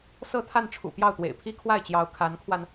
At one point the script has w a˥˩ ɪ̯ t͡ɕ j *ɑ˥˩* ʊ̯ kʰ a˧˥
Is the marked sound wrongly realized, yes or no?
yes